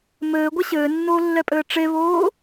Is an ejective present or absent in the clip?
present